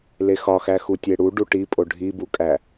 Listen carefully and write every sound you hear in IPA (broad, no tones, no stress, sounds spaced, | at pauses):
l e x ɒ x æ x u tʲ e ɽ u ɖ u ʈ i pʼ o ɖʱ i b u kʼ æ